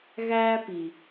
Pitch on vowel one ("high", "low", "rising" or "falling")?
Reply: high